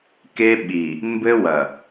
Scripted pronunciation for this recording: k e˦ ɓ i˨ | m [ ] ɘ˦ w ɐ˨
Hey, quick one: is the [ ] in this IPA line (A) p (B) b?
B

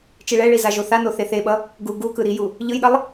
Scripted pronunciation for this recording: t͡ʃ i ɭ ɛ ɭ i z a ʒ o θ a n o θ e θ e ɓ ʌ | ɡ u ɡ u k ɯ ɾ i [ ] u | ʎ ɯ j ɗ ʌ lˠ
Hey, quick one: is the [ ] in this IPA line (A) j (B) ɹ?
A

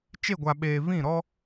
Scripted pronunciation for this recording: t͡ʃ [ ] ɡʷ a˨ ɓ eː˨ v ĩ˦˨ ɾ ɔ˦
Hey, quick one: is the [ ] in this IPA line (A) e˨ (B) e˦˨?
B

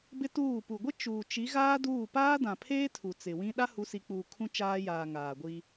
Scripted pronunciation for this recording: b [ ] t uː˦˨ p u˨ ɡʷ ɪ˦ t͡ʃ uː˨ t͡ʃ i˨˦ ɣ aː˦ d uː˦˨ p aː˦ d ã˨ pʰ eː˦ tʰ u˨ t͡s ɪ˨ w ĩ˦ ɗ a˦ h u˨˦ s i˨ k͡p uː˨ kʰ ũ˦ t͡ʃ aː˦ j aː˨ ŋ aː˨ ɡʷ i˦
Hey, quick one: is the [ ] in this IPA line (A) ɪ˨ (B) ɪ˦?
B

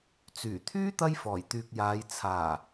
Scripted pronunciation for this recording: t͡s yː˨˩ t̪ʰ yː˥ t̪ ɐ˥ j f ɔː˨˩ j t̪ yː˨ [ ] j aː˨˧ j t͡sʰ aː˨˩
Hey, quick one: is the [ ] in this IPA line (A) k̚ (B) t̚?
A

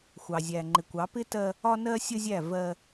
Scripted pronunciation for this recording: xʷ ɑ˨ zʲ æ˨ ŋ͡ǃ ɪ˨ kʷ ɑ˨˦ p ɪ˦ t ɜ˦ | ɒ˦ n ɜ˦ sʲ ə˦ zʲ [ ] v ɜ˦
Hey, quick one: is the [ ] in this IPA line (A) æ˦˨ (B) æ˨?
A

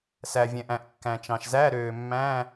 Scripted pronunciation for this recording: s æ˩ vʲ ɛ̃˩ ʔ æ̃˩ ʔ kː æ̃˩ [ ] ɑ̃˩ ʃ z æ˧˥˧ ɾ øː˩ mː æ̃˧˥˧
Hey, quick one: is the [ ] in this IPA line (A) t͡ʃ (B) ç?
A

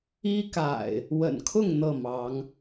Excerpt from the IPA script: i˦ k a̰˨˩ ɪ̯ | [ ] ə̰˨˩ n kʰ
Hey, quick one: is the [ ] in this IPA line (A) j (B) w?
B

